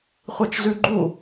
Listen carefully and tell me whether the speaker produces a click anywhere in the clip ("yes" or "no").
yes